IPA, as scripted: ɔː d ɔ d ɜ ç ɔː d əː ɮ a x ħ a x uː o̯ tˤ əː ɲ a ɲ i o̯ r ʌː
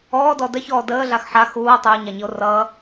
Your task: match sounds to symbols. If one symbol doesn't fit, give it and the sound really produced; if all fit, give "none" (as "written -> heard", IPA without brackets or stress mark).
none